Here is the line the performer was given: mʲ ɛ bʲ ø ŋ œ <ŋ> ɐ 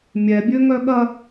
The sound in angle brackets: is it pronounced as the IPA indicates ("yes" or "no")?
no